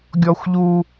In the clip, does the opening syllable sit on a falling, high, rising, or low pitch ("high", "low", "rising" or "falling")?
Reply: high